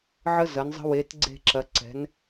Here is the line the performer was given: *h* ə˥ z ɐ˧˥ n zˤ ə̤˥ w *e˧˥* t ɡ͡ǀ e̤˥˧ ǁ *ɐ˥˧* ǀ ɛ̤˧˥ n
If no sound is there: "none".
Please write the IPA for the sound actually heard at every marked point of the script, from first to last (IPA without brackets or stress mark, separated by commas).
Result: ʕ, e˧˥, ɐ˧˥